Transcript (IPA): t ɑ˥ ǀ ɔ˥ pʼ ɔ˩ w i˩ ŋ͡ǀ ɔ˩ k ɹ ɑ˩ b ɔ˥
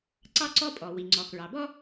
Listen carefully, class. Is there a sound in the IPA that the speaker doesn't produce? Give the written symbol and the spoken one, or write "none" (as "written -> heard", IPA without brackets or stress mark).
t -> ǀ